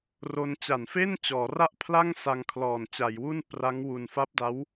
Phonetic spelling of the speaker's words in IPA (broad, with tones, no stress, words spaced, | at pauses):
ro˧nt͡ɕa˨˩nfe˥˩n t͡ɕɔː˩˦ra˥˩ʔpʰla˥˩ŋ sa˧ŋkʰlɔː˨˩nt͡ɕa˩˦jwu˥˩n pra˦˥ŋwu˨˩n fa˦˥p̚da˦˥w